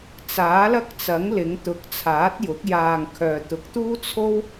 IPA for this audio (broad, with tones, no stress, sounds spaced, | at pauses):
t͡s aː˨˥ l ɐ˥ k̚ t͡s ɐ˨˥ ŋ l ɪ˨˧ ŋ t̪ ʊ˨˥ k̚ t͡sʰ aː˨˥ t̚ j ʊ˨˥ k̚ j aː˧ ŋ kʰ œː˨ t̪ ʊ˨˥ k̚ t̪ uː˥ t͡sʰ o˥ w